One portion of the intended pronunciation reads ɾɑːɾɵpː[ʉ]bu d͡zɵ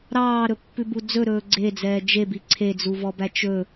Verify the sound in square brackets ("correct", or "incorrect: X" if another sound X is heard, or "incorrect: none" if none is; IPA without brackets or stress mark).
correct